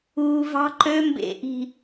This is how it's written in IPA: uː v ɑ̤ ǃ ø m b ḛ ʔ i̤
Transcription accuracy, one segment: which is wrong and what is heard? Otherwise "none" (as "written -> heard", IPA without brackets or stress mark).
none